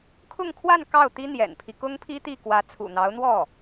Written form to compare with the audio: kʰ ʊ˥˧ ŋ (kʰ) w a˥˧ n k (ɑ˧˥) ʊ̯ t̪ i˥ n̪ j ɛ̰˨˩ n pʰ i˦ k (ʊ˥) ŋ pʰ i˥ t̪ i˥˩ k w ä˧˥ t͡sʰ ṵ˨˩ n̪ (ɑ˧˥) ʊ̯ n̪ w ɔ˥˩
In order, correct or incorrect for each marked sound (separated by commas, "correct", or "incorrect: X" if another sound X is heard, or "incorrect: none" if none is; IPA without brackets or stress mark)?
correct, incorrect: ɑ˥˩, correct, correct